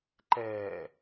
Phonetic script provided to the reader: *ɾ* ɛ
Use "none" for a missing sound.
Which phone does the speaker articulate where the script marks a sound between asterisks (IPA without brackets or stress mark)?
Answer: ǃ